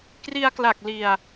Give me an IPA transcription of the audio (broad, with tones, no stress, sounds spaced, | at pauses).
k r i˧ a̯ k l a˨˩ k̚ l i˧ a̯